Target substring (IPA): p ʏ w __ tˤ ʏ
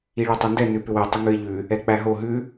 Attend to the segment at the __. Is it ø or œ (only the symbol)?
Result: ø